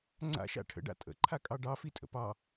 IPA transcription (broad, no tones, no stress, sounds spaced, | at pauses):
ŋ͡ǀ a̰ ʃ a̰ ʈʰ ə̰ ɖ a̰ tʼ ə̰ ǃʰ a kʼ ɑ ɖ ɑ f i tʼ ə̰ p ɑ